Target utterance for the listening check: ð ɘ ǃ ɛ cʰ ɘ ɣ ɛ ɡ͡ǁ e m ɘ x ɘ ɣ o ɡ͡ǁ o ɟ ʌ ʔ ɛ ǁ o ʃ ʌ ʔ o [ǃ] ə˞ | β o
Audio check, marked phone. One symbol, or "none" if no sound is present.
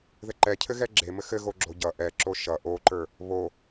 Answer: ǃ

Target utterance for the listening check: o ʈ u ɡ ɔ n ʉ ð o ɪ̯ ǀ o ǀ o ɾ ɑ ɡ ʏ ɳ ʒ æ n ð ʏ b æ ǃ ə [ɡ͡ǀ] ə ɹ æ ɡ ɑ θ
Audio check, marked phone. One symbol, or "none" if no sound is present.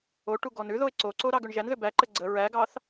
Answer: ɡ͡ǀ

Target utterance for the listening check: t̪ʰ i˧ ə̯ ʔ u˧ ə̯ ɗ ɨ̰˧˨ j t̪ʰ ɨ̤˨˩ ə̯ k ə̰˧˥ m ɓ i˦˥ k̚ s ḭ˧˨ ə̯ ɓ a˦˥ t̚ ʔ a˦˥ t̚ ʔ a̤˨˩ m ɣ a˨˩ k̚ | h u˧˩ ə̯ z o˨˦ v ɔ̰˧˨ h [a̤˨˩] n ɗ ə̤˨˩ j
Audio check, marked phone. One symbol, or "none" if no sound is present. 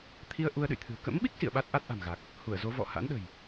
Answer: a̰˧˥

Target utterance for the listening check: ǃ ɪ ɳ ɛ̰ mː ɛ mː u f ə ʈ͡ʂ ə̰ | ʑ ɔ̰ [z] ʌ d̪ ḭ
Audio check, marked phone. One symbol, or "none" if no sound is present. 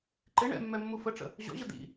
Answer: ʑ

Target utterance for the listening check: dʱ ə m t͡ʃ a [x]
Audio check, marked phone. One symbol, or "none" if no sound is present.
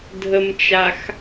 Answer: x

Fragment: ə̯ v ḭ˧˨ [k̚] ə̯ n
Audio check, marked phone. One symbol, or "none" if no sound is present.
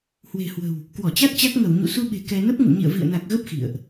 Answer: none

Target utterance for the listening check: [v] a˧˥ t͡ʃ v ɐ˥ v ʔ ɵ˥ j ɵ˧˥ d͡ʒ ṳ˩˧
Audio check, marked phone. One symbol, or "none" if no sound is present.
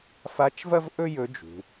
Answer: f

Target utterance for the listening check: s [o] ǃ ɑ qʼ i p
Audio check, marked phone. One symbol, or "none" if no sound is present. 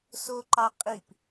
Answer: o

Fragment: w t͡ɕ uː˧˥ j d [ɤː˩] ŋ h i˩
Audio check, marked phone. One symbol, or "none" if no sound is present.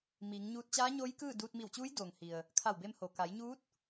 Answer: oː˩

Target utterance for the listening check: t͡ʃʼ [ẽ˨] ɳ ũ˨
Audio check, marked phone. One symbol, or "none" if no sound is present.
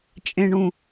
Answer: ẽ˨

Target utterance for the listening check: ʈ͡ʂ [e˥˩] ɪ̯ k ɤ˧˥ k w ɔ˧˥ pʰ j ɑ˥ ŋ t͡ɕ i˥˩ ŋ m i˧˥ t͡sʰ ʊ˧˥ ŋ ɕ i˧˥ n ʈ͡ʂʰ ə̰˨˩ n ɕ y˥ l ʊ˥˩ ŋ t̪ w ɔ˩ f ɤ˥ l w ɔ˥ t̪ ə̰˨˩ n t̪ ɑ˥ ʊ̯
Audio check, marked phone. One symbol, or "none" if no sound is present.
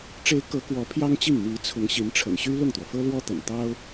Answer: e˧˥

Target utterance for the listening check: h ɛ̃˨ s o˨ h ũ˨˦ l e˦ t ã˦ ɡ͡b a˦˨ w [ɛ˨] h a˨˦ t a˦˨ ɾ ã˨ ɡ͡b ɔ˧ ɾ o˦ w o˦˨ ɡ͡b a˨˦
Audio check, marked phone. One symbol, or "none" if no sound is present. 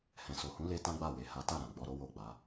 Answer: e˨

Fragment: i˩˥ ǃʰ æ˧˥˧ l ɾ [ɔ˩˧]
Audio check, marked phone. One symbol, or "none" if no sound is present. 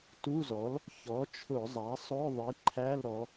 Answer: ɔ˩˧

